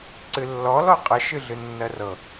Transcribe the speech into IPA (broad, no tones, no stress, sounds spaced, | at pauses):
ǀ ɨ lː ɔ l ɔ qʼ ə ʃ ɨ ɮ ɨ nː ɜ r ɤ